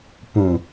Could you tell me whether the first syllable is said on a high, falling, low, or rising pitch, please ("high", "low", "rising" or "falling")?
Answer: low